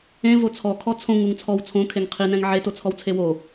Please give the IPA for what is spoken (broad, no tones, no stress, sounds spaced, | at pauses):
ẽ v o t͡sʰ ɔ kʰ ɔ t͡sʰ õ ŋ u ŋ t͡sʰ ɔ w t͡sʰ õ kʰ e ŋ qʰ i n ɛ̃ ŋ ʕ e t o t͡sʰ ɔ w t͡sʰ e w o